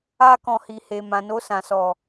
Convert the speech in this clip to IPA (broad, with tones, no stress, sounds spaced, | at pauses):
a˦ k ɔ̃˧ h i˨ h e˨ m ã˨ n o˧ s ã˨ s ɔ˨